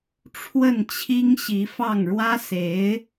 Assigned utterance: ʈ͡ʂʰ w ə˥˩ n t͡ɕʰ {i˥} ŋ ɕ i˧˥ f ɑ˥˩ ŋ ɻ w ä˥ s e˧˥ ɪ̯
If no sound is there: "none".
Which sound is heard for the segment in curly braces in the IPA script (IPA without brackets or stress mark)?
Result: i˥